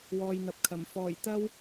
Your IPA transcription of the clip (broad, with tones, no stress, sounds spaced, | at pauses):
w ɔː˨ j n̪ ɐ˨ p̚ kʰ ɐ˨˩ m f ɔː˨˩ j t̪ ɐ˥ w